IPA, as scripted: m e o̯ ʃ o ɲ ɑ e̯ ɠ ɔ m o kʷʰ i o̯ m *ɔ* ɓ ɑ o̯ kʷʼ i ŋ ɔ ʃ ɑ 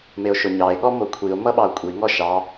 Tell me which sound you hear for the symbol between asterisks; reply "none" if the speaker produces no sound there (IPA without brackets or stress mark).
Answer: ʌ